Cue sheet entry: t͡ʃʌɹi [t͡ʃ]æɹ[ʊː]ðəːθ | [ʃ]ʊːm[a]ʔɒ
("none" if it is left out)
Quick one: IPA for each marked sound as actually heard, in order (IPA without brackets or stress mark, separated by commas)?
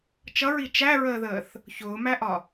t͡ʃ, əː, ç, æ